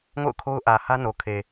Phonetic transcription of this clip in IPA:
ŋo̰˦˨ʊ̯kʰo˦ʊ̯ʔä˨hä˦ no˨ kʰe˨

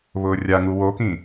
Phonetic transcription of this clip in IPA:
βʊːrʲaŋu wokĩ

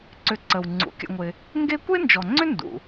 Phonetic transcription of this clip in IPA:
ǀʏ˨ǀə˩w ŋ͡ǀṵ˩kʲə̰˨ŋʷɪ˨ | ŋɡe˦kʷe˥nd͡ʒɔ˩ŋ͡ǀʏ˥ ndṵ˩

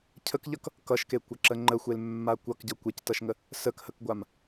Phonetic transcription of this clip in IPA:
cʰəkʎʌk | kʌʃkekʷʌǁə ŋ͡ǃəxʷelmːa kʷʌkɟʌ kʷectʌʃŋə | səkhəkɡʷam

